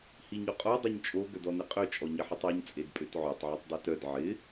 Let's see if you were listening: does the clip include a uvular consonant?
yes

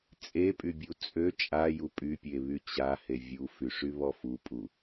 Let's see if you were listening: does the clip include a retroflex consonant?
yes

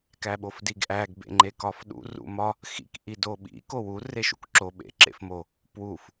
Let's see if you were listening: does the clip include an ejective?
no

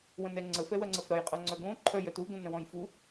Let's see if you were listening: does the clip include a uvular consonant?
yes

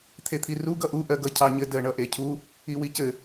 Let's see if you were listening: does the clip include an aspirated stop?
yes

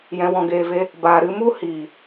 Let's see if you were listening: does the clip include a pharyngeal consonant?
no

